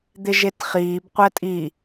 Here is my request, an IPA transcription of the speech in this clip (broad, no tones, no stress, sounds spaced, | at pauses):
d̪ ɪ ʒ e t χ iː b qʷ ɛ tʼ i